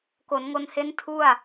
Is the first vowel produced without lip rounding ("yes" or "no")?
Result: no